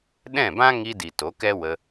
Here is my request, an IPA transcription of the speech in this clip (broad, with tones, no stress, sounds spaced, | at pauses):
ɗ ɛ̃˦˨ b ã˦ ŋ i˧ d i˨ t o˨˦ k ɛ˦ w ə˧